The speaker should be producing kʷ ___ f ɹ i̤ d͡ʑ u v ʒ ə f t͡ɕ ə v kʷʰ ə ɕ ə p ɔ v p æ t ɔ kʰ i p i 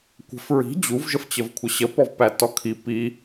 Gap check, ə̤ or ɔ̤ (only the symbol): ə̤